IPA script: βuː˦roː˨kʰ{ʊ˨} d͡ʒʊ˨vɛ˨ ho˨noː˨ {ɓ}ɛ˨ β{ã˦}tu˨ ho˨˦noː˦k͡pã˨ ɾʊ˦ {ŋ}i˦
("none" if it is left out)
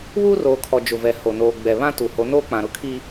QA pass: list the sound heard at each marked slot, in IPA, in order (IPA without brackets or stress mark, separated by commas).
ɔ˨, ɡ͡b, ã˦, kʰ